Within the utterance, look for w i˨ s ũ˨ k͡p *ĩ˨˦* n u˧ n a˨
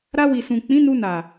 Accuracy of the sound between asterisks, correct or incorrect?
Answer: correct